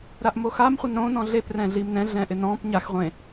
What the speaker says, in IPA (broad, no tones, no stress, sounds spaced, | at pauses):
ɾ a ʔ m o x a m χʷ ɪ n ɾ õ n ɔ̃ ɮ e p r ɛ̃ ɮ i m n ɛ̃ ɮ ɛ̃ ʔ ɪ n ɔ̃ p ɲ a x ʁʷ ẽ